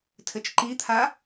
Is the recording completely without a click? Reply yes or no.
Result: no